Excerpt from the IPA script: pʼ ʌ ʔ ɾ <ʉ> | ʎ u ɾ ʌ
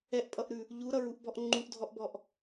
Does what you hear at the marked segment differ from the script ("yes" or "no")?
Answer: no